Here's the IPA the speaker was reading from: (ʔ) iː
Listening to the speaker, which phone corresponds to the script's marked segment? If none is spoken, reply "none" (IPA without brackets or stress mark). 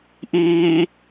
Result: ʔ